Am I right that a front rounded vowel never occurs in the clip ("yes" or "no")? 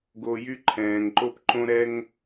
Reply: no